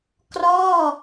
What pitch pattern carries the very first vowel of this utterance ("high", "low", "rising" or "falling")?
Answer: falling